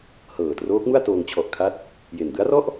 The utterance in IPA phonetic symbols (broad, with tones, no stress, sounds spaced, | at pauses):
h ɤː˨˩ t r oː˦˥ k̚ m u˥˩ a̯ t oː˧ ŋ t͡ɕʰ ɔ˨˩ ʔ kʰ a˦˥ t̚ | j e˨˩ n d ɯ˦˥ a̯ r ɔ˥˩ ʔ